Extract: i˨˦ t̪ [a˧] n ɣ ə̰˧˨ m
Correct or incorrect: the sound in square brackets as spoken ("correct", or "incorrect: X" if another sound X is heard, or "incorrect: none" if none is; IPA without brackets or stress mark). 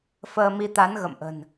incorrect: a˨˦